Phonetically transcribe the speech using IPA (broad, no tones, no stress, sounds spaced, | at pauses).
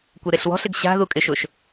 kʷ e ɾ e ɬ w ɔ̤ ɬ ɪ ɡ ɕ a̤ ð u kʼ ɪ ʃ ʊ ʃ